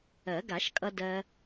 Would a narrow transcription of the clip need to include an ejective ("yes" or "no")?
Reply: yes